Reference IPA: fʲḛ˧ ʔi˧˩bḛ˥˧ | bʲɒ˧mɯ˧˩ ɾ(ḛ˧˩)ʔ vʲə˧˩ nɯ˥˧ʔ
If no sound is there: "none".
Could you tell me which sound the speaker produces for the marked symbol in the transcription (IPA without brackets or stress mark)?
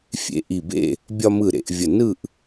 ḛ˧